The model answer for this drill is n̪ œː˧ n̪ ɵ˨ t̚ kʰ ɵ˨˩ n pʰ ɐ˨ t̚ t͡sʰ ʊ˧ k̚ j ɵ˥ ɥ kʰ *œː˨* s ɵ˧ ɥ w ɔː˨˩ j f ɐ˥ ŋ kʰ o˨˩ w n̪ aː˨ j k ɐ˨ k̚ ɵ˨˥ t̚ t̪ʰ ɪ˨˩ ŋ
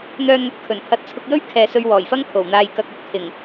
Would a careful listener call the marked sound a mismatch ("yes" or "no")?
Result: yes